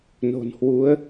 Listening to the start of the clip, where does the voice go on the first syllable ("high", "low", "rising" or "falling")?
low